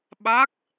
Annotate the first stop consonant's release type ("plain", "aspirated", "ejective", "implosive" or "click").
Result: implosive